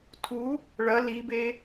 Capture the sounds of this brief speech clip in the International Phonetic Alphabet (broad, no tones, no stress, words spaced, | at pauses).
tʰu | ɭɐ libe